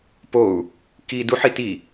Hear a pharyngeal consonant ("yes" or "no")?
yes